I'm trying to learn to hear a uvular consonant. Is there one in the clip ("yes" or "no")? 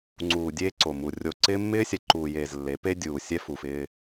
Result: no